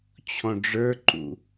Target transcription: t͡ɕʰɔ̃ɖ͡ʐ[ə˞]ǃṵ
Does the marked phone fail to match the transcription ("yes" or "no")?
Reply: no